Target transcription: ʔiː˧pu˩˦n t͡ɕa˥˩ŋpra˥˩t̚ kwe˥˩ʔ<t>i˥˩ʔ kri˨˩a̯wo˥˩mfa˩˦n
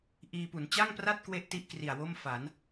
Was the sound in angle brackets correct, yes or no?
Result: yes